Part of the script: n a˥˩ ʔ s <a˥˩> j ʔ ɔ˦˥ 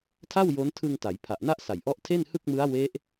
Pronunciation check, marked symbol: incorrect: a˨˩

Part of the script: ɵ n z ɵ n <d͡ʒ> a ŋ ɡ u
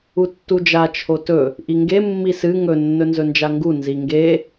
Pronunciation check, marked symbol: correct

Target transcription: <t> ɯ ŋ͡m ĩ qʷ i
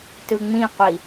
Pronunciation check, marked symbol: correct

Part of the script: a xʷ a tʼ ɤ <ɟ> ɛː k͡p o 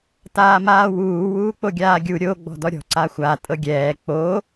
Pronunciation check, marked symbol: incorrect: ɡʲ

